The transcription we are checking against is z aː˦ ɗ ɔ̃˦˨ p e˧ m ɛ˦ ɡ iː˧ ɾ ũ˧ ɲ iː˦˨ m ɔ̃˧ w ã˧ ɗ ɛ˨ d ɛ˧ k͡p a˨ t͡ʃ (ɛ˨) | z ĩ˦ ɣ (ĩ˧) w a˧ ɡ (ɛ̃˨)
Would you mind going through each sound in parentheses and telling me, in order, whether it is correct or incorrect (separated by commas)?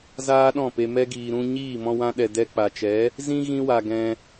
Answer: incorrect, incorrect, incorrect